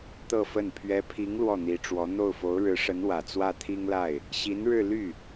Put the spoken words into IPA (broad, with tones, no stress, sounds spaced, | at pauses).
t̪ ɤ˥˧ f ə˥˩ n pʰ ɥ ɛ˧˥ pʰ i˧˥ ŋ l w ɔ˥˩ n̪ i˧˥ ʈ͡ʂ w ɔ˧˥ n̪ o˥˩ ʊ̯ f o˧˥ ʊ̯ ɻ ɻ̩˧˥ ʂ ə˧˥ n w ä˨˩ t͡s w ä˥˩ t̪ʰ i˥ ŋ l a˥˩ ɪ̯ | ɕ i˧˥ n ɻ ɻ̩˥˧ l y˥˩